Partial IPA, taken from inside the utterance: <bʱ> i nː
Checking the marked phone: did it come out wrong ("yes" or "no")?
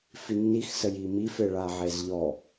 yes